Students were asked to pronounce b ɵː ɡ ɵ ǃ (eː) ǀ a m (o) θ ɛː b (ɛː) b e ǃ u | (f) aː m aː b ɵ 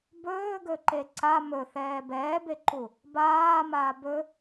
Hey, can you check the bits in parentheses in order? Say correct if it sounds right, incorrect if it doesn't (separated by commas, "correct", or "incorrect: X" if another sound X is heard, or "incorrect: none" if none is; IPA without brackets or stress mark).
incorrect: e, incorrect: ɵ, correct, incorrect: b